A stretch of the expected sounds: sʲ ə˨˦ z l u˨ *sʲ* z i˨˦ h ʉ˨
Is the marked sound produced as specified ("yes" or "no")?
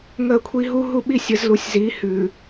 yes